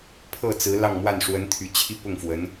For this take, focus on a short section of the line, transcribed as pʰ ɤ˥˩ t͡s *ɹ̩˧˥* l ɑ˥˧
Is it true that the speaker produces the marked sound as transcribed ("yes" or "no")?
yes